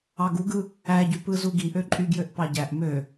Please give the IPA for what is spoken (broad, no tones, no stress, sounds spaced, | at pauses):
ɑ ɡ u ɡ ɯ | æ ɟ y p ɯ z u ɡ i ʔ ø ǃʼ y ɡ j ø ʔ p ɑ ɟ æ ʔ m ø